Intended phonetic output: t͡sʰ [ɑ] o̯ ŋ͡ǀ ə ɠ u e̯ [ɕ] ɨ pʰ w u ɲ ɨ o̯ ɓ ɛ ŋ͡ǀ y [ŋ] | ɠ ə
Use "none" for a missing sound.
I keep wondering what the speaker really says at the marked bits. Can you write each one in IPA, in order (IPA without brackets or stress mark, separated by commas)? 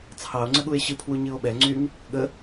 ɑ, ɕ, ŋ